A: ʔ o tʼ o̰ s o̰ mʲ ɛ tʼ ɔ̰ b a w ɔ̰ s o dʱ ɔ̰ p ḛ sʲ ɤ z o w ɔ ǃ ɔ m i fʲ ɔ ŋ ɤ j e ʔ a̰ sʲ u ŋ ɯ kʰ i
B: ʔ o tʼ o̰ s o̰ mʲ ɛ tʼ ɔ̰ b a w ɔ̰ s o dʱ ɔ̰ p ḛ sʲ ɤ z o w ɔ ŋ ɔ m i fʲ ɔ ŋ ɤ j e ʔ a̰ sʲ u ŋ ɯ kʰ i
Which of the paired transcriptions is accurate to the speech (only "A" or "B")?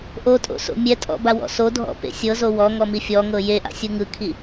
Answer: B